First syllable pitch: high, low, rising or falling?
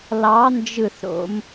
rising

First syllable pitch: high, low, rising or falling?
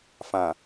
low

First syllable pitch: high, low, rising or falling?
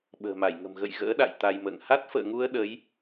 low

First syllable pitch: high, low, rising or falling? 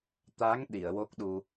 rising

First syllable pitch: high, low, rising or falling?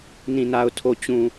low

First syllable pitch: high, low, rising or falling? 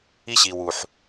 high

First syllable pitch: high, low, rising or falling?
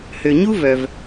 low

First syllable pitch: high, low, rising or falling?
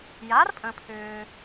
rising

